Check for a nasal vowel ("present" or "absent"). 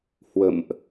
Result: absent